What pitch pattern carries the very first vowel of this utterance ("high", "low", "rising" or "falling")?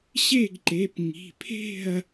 falling